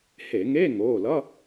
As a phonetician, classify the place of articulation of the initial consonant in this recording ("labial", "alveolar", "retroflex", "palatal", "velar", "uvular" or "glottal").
glottal